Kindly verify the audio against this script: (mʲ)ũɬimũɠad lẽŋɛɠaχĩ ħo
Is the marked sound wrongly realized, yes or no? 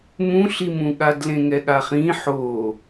yes